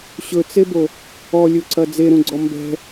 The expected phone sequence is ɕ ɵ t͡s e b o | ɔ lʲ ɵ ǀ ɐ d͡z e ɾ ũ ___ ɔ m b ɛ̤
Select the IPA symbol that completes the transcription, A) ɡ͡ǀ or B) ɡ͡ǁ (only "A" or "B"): A